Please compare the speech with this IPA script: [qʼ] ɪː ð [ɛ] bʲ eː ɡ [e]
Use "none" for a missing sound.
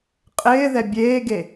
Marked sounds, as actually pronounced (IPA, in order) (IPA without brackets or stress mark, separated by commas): qʼ, ɛ, e